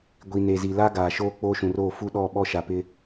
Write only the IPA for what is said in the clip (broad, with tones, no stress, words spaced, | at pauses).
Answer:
ɡʷi˨ ne˨zi˨ la˦ ɡaː˨ʃoː˦ k͡poː˦ʃũ˨roː˦˨ fu˦ɗɔ˦˨ ɓɔ˦ʃa˨pɪ˦